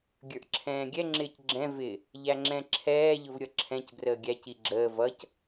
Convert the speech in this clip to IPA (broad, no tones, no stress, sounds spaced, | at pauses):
ɡʲ ə˞ ʔ ǁʰ ɛ̃ː ɡʲ ɛ ŋ͡ǁ ɪː c ɡ͡ǁ ɛ̃ v ɪ | ʎ æ ŋ͡ǁ ɛ̃ ǁʰ ɛː ʎ ʊ v ɾʲ ʌ ǁʰ ɛ̃ c b r əː ɡʲ æ c i ɡ͡ǁ əː v ʌ c